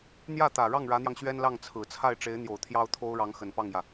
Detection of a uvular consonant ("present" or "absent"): absent